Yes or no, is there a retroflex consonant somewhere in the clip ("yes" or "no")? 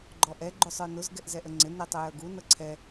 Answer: no